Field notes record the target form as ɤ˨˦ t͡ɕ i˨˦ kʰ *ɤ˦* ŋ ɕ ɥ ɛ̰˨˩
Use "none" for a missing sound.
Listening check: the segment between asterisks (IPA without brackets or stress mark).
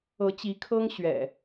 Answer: ɤ˦